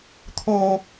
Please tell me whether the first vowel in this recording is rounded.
yes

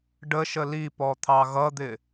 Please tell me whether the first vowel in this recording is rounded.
no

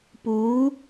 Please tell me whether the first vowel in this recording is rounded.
yes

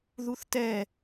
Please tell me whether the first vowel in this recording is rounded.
yes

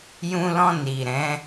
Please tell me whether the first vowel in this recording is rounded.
yes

